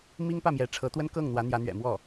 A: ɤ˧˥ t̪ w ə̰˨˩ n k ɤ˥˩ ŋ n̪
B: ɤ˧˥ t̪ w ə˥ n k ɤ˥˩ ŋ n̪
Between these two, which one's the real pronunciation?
B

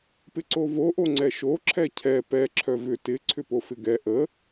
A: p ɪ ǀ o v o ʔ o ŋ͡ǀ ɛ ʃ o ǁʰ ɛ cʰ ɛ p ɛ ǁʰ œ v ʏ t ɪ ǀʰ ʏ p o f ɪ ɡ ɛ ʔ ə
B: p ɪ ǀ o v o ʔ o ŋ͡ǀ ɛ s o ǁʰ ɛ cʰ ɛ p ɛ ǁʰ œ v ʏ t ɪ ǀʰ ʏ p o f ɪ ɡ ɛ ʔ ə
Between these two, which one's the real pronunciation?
A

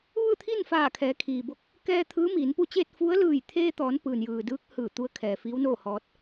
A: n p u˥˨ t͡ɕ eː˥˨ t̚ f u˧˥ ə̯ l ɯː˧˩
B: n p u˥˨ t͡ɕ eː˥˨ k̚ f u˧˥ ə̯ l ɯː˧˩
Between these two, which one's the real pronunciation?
A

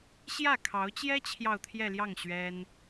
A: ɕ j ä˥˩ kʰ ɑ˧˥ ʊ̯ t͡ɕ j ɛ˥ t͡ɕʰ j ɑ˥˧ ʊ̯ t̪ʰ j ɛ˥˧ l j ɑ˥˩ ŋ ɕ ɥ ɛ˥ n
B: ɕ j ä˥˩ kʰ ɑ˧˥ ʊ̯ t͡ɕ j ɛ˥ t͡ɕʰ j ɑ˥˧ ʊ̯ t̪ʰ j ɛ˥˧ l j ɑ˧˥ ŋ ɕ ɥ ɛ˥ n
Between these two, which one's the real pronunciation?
A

